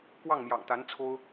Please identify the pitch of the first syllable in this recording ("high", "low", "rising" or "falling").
falling